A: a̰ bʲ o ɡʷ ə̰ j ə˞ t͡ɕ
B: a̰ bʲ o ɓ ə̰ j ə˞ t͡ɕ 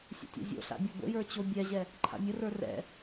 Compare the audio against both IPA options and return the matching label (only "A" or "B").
A